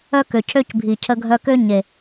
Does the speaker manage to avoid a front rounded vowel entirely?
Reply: no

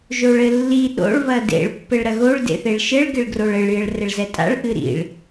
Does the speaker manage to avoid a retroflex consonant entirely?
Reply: no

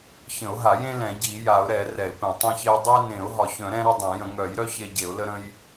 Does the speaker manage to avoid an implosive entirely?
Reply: yes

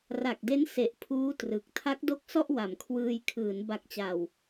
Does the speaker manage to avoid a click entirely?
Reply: yes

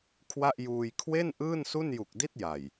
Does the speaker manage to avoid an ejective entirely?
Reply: yes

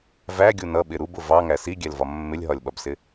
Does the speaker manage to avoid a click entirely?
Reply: yes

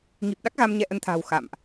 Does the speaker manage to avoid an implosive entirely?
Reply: no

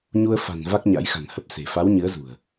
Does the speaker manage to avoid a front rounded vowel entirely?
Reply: yes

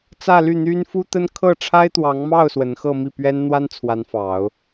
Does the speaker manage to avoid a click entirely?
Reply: yes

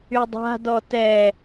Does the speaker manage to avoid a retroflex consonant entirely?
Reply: yes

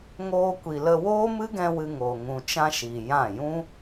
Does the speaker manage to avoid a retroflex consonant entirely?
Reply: yes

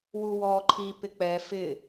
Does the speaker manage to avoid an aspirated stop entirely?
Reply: no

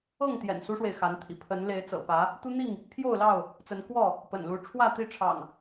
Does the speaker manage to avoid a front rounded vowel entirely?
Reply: yes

